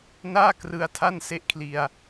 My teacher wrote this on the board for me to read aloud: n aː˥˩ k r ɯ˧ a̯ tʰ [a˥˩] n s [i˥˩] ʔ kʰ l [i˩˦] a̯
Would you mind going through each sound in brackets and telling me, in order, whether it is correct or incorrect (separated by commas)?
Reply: correct, incorrect, incorrect